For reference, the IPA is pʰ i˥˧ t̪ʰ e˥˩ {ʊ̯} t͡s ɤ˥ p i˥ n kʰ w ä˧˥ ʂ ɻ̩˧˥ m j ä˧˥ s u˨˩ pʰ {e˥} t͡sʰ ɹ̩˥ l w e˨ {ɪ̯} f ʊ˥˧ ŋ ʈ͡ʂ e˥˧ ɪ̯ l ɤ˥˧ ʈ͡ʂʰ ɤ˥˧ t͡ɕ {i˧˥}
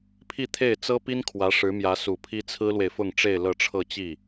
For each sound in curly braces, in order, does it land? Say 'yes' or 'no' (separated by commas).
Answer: no, no, yes, no